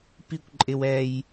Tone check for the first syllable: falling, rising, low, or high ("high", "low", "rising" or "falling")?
high